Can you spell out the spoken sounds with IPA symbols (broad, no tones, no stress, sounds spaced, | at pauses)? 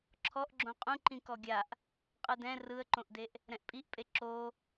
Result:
ǁʰ ɔ ʔ ɡ͡ǁ õ qʼ ũ ǃ ĩ k ɔ ɡʲ a ʔ | qʼ ɯ d ɛ̃ r ɯ ə̯ ǃ õ ʔ d e ʔ | ɾ ɛ̃ ʔ pʼ i ʔ pʼ e ǁ o